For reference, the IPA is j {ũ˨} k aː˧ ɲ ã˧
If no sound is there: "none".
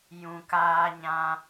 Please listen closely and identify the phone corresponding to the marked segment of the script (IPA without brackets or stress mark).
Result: ũ˨